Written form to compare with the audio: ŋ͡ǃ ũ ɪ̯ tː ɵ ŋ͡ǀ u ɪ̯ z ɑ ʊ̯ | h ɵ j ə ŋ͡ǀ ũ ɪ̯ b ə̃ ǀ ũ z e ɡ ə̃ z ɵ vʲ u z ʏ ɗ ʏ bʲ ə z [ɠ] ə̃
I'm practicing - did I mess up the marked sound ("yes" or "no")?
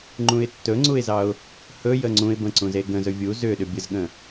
no